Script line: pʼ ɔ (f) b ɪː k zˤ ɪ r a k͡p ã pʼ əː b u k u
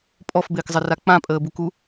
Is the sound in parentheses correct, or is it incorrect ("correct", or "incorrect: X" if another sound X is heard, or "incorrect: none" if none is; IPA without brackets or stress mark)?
correct